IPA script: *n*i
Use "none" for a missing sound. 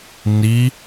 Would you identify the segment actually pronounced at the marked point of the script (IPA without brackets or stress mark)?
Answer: n